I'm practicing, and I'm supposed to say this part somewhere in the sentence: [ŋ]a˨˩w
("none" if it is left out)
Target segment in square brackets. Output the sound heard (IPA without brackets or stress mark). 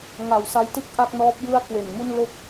ŋ